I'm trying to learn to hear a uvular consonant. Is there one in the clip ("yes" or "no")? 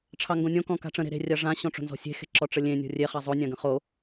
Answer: yes